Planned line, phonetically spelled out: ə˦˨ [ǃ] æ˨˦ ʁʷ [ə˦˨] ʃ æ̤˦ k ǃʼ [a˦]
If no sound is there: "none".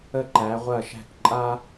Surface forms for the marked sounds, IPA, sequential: ǃ, ɐ˦˨, a˦

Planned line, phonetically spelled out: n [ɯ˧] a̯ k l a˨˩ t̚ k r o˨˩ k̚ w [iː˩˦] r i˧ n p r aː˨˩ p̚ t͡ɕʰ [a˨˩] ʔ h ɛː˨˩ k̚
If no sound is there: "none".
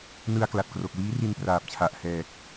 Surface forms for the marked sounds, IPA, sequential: ɯ˧, iː˦˥, a˨˩

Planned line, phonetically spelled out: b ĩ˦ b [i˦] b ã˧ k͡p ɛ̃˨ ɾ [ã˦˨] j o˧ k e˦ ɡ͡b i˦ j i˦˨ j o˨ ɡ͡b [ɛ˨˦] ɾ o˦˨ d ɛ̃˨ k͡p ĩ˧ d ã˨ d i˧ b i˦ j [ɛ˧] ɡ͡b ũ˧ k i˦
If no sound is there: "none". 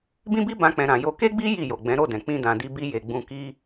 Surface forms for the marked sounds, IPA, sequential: i˦, ã˨, ɛ̃˨˦, e˧

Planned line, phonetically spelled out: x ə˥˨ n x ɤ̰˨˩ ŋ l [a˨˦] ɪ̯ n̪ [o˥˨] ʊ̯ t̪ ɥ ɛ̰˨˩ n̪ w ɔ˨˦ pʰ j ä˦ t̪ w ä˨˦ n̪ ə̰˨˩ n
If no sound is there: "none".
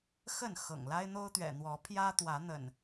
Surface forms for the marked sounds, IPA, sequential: a˦, o˦

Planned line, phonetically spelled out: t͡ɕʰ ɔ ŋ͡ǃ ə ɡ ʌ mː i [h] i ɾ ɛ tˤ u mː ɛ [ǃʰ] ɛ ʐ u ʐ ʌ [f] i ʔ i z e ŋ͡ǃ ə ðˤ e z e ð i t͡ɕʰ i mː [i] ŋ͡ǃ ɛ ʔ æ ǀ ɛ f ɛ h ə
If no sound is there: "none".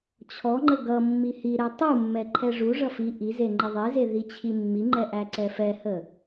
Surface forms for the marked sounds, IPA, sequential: h, ǃʰ, f, i

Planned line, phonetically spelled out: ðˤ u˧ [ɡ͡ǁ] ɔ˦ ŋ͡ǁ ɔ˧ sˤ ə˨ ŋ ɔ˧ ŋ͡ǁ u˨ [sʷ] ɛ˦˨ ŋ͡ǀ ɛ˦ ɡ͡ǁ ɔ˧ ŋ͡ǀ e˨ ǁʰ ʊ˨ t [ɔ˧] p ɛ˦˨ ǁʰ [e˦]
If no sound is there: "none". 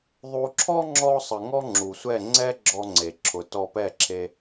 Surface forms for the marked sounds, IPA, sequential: ǁʰ, sʷ, ɔ˧, e˧

